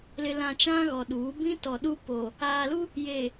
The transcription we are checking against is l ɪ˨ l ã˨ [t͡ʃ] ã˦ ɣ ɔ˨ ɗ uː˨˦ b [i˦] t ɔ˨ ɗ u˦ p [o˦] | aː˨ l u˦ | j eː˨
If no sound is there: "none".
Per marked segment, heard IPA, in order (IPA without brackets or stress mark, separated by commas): t͡ʃ, ĩ˦, o˨